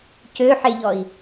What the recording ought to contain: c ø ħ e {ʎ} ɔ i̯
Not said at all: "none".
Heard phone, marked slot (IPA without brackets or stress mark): ʎ